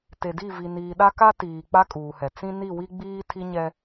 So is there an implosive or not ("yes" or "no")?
yes